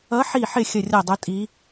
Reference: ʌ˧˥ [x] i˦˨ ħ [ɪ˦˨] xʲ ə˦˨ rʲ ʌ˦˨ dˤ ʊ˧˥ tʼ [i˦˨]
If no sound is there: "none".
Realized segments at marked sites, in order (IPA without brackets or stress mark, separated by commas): ħ, ɪ˦˨, i˧˥